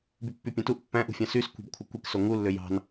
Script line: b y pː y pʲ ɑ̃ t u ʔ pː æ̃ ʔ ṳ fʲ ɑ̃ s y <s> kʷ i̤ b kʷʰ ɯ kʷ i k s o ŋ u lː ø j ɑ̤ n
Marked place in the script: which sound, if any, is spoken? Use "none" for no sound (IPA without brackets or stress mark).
s